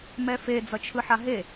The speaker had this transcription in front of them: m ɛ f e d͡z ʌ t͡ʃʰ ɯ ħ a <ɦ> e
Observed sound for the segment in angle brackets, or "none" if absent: ɦ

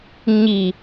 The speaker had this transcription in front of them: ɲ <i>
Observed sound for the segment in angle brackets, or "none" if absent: i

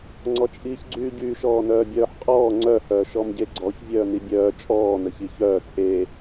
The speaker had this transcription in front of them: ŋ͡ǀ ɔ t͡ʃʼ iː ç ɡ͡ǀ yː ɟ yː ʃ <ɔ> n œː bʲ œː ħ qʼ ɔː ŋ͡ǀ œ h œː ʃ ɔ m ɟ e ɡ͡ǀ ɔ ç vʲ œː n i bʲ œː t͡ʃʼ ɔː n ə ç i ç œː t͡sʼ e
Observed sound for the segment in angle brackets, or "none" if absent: ɔː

